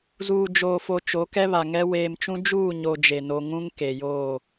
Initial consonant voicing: voiced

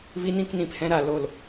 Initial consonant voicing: voiced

